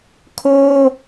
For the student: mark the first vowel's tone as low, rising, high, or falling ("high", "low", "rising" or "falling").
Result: high